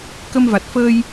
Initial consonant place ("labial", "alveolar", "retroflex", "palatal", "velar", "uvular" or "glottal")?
velar